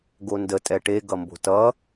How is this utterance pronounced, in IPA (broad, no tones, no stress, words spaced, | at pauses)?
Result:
ɡondə tʼɛʈe ɡʌmbo̤tʌ